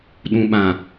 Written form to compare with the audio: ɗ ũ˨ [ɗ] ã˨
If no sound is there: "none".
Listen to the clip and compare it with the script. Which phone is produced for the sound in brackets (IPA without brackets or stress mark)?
ɓ